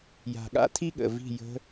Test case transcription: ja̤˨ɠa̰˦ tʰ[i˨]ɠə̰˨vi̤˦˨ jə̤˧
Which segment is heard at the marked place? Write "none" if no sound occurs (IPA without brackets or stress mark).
i˦